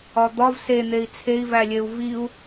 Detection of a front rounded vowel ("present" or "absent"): absent